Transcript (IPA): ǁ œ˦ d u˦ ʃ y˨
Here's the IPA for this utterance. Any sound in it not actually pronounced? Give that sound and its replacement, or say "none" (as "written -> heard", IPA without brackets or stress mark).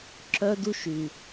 none